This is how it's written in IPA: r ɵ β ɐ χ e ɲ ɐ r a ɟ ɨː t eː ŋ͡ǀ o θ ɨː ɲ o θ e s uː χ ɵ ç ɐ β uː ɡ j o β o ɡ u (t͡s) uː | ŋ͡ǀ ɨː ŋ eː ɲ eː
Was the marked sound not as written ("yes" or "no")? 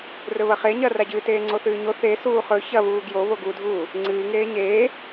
yes